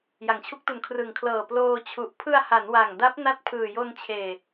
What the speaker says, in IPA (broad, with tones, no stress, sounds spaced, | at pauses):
j a˩˦ ŋ t͡ɕʰ u˦˥ k̚ t u˨˩ n kʰ r ɯ˨˩ ŋ kʰ l ɤː˨˩ p l oː˧ t͡ɕʰ u˨˩ ʔ pʰ ɯ˧ a̯ h a˩˦ n w a˨˩ ŋ d a˦˥ p̚ n a˦˥ t̚ pʰ ɯː˨˩ j o˧ n t͡ɕʰ eː˨˩